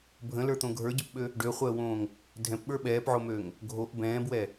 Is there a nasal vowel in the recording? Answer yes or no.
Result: yes